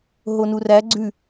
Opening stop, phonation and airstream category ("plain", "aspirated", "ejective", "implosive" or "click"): click